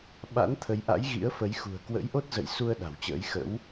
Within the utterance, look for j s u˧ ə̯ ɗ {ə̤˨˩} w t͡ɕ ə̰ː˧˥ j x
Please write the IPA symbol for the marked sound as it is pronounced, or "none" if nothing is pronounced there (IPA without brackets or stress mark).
a̤˨˩